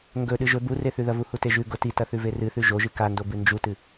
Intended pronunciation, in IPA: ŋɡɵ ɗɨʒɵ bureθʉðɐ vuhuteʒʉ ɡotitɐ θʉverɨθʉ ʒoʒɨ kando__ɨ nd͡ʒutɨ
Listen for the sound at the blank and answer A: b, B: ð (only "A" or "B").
A